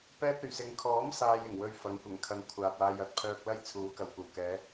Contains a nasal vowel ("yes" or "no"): no